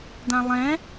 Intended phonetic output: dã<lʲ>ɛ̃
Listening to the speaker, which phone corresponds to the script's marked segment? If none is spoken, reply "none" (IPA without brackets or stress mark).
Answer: lˠ